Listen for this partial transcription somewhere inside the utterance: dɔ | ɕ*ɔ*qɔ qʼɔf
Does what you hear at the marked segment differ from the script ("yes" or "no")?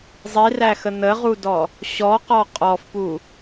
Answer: no